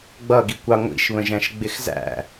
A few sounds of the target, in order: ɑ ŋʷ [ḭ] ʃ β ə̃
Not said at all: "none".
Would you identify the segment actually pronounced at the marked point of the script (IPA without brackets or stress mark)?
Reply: ḭ